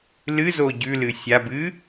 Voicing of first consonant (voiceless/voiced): voiced